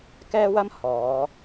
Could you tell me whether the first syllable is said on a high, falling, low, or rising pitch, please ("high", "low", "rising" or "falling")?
high